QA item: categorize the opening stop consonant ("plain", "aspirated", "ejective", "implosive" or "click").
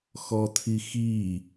aspirated